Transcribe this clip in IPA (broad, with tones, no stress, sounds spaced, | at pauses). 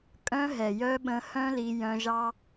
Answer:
kʼ œ̃˧ ɦ ɛ˨ j œ˧ ɓ ə̃˧ h œ̃˦ l i˧ j œ̃˧ ʒ ɑ˦